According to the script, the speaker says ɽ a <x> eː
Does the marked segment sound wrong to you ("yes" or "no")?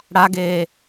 yes